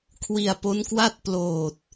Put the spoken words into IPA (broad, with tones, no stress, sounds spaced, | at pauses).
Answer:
kʰ w i˧ a̯ p o˦˥ n k w a˥˩ t̚ p l oː˨˩ t̚